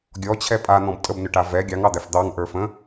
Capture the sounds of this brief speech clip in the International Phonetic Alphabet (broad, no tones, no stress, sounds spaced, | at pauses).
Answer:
ɡʲ ɔ t͡ɕʰ ɛ pʼ a n̪ ɔ̃ b tʼ ə b n ʏ ʈ a v ɛ ɡʲ ɑ ŋ ɑ d̪ æ f d̪ ɑ ŋ ʔ ə˞ f ə̃